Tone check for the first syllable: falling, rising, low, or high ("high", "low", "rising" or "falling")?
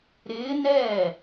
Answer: rising